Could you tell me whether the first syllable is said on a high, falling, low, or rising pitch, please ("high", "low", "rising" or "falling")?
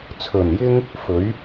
low